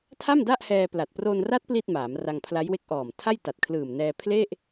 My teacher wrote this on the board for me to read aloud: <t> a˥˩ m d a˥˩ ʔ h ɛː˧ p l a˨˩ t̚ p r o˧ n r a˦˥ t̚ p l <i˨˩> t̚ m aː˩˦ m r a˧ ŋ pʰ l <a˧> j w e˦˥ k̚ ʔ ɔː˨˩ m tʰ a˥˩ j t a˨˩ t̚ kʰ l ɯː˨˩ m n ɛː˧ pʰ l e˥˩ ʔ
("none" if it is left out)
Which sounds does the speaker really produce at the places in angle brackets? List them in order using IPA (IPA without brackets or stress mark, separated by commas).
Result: tʰ, i˥˩, a˦˥